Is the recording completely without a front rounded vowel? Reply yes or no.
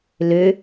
no